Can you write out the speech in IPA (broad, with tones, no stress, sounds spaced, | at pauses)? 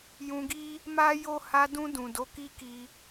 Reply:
j ũ˧ ɡ i˦ | m a˦ j o˦˨ h a˧ d ũ˧ d ũ˨ d o˨˦ k i˦ k i˧